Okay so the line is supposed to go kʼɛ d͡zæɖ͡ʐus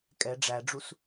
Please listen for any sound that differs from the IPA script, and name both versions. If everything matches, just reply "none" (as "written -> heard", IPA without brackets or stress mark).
d͡z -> ɖ͡ʐ